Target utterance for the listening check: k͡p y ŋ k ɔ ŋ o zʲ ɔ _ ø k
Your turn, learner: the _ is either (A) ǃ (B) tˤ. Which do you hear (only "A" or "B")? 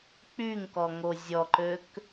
A